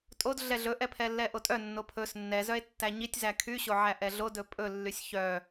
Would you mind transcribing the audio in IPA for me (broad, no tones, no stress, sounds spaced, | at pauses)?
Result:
tʼ o d ɮ ɛ ɮ ɵ ʔ ɛ pʰ ɛ lː ɛ ʔ o tʼ œ nː o pʰ ɵ s nː ɛ z œ e̯ tː æ ɲ i tʲ z æ kʰ y ɕ o ʕ æ ʔ ɛ ɮ o d ɵ pʼ ɵ lː y sʲ ç œ